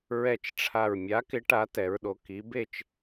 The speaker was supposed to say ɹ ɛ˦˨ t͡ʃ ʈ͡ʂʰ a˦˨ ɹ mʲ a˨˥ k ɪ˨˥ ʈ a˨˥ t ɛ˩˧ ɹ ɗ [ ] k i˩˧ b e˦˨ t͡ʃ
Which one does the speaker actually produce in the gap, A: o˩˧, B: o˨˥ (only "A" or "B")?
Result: A